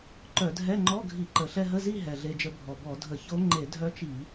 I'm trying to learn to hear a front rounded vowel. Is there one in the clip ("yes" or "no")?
yes